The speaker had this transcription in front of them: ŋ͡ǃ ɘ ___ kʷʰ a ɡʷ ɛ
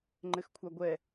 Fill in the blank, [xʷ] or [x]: x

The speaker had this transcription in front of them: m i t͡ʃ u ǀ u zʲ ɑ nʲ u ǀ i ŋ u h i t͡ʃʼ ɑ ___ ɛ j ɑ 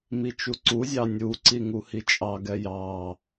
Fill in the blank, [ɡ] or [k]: ɡ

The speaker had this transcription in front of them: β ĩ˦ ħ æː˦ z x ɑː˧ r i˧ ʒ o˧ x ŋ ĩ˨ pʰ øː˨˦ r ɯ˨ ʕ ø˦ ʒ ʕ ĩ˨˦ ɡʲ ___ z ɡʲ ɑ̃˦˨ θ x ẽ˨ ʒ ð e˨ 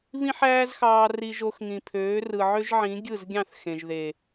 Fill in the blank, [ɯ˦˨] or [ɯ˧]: ɯ˦˨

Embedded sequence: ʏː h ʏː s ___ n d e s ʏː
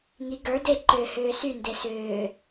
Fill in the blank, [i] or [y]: y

